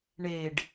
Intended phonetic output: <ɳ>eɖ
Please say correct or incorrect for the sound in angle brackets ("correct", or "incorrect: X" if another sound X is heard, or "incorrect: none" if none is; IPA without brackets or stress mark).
correct